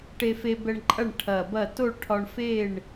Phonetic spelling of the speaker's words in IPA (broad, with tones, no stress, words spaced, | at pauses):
ʈe˧fe˧bɛ˧ɳǃʼɐ˥˨ɳ ʈʰɐ˧˩bɐ˥˨ to˥˨ɭʈʰɒ˧ɳfe˥˨ɳ